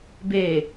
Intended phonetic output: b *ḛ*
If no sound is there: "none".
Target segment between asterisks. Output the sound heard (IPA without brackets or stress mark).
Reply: e